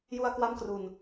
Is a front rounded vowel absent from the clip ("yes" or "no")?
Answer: yes